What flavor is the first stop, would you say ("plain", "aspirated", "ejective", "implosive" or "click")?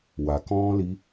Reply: plain